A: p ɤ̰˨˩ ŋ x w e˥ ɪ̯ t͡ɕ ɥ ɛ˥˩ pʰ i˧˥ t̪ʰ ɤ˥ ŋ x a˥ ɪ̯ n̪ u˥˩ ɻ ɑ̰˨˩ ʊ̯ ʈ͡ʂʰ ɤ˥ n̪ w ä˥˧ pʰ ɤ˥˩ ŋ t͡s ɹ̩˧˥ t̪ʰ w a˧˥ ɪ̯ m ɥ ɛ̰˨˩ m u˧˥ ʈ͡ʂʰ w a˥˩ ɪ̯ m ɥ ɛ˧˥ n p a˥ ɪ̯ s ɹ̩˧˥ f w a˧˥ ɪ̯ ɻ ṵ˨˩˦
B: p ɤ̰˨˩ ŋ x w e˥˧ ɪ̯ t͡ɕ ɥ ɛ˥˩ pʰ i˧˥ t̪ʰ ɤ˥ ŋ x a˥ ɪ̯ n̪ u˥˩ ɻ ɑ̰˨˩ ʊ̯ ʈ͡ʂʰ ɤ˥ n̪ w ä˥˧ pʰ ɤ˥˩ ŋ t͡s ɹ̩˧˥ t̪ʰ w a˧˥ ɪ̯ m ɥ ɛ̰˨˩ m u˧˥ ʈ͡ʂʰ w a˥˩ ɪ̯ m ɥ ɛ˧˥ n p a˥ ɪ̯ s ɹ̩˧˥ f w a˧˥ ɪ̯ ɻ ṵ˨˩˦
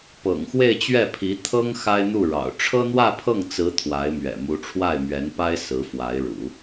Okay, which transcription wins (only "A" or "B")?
B